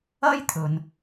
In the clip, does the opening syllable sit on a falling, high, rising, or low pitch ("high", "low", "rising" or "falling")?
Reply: high